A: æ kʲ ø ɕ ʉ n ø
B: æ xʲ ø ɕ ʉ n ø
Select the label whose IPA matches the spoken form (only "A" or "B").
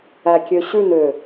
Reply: A